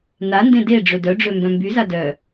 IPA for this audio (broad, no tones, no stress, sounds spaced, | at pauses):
n a n d ẽ d e ɖ͡ʐ ø d œ ɖ͡ʐ ø m b œ̃ m b y z a d œ